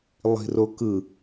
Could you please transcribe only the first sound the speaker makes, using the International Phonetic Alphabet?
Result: lˠ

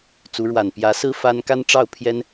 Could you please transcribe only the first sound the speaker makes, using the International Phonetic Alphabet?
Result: t͡s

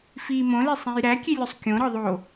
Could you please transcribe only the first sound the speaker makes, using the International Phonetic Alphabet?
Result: f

